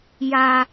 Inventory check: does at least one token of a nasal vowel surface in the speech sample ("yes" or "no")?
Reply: no